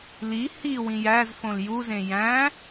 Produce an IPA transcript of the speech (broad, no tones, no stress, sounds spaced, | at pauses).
l i h i w ĩ j æ z f õ l j u z ẽ j æ̃